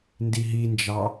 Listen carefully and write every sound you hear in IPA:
n d i ɦ i n d͡ʒ ɑ

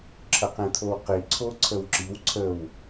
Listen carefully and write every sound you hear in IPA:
ǁʰ ə q ẽ t̪ʰ o w q i ǀʰ o ǀʰ ə w ǁ i w ǀʰ ə w

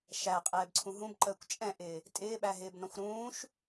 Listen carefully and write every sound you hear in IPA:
ʃ æ qʼ ɛː b ǀʰ ũ ɦ ũ b ǃ əː kʷ t͡ʃʼ ɛ̃ ʔ ɪː | tʼ ɪː ɓ æ ɦ ɪː b n ɔ̃ xʷ ɾ ũː ʃ

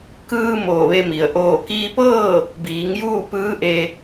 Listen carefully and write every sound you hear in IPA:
k ɯː˧ m oː˧˩ ʋ e˧ m i˩ ə̯ ʔ oː˧˩ k iː˧ p ɤː˥˨ | b iː˩˧ ŋ j uː˥˨ p ɯː˧˥ ʔ e˧

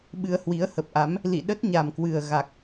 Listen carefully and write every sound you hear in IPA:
ɓ ɨ˧ ə̯ h w i˨˦ ə̯ h ə˨˩ p̚ ʔ a˨˦ m | l ḭ˧˨ ɗ ə˦˥ t̚ ɲ a˨˩ m k w ɨ˨˩ ə̯ ɣ a˨˩ k̚

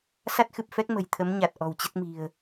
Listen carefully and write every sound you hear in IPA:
s a˦˥ t̚ x ɨ˨˩ p̚ f ɛ˦˥ k̚ m ə̤˨˩ j t̪ʰ ə˨˦ m ɲ a˨˩ t̚ ʔ ɔ̤˨˩ w t͡ɕ ə˦˥ t̚ m i̤˨˩ ə̯

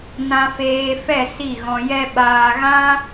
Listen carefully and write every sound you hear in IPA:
n ã˧ f eː˧ f ɛ˦˨ s i˦˨ ɣ ɔ̃˧ j ɛ˦ ɓ aː˧ ɣ ã˦

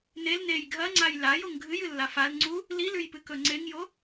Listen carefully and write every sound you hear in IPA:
n e l n e j ɡʱ ɐ ŋ͡ǀ a j l a j o ŋ ɡʱ ɨ j ɨ lː a f a l ŋ͡ǀ u | l i l ʉ j p ɨ k ɵ ŋ͡ǀ e ŋ j o

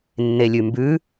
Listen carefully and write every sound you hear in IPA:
nː e lʲ ʉ m b ʉ

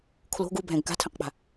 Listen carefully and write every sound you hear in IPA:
kʰ l o̤ ɡ u bʱ ɛ̃ ɡ k a̤ tʰ ɛ̃ q k͡p a̤

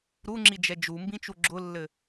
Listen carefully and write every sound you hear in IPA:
ɾ u ŋ͡ǁ i d͡ʒ ɛ d͡ʒ u m b ĩ t͡ʃ u ɡ͡ǁ ʊ lː ɘ

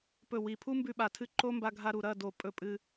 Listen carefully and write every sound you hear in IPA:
p ɵ˦˨ w i˨ pʰ u˦ m b ʉ˧ ɓ a˨ tʰ ɨ˧ ǃ o˦ m b a˧ ɡʱ a˧ ɾ u˨ ɾ ɐ˦˨ d o˨ pʼ ɵ˦˨ pʼ ɨ˧

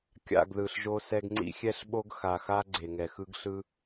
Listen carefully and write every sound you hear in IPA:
kʲ a̰˦˨ ɡ ð ɯ˨ ɬ ʒ o˦ s ɛ˦ ɡ ŋ͡ǀ ḭ˦ xʲ ɛ˦ ɬ ɓ o˦ ɡ x a˨ x a˦ ɡ͡ǀ e˨ ŋ ɛ˨ x ɯ˦ ɡ ɬ ɯ˦

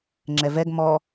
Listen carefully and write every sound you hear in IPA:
ŋ͡ǁ ɛ v ɛ ɡ m ɔ

